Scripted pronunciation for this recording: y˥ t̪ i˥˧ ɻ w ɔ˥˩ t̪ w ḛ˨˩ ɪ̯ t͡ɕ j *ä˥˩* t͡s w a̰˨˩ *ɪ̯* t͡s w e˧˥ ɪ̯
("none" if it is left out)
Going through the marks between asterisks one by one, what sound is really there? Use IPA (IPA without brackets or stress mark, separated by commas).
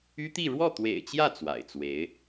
ä˥˩, ɪ̯